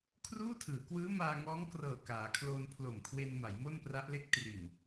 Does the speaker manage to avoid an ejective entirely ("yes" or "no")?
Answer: yes